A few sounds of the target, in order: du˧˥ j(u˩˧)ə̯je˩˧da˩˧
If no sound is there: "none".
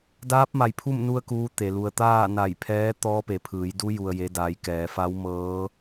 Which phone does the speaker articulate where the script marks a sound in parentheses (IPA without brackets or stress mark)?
u˩